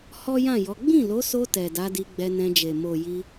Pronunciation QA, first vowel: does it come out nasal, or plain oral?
oral